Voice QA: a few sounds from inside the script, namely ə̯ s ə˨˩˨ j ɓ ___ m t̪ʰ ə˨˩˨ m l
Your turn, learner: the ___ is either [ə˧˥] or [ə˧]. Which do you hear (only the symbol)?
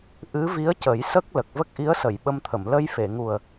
ə˧